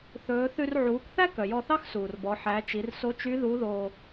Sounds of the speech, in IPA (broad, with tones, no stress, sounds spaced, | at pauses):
θ ɵː˩˧ θ ʉ˧ r ʕ uː˩˧ k θ æ˥ k œ˩ j ɔ˧ θ ɑ˥ x s uː˩ r b ɔ˩˧ ħ æ˩˧ t͡ʃ i˩˧ r s o˧˥ t͡ʃ y˧˥ ð u˧˥ ð oː˧